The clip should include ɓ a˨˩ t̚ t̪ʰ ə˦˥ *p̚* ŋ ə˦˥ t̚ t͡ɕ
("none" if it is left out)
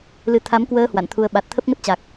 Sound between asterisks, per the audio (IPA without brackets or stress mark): p̚